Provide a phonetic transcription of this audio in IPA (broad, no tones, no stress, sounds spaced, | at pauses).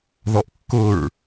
ð ɔ ʔ kː ʊ ɹ